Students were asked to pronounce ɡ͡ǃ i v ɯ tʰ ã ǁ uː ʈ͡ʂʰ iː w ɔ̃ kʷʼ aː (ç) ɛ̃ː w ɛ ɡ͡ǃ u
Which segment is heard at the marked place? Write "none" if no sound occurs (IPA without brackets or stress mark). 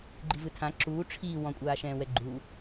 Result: ʃ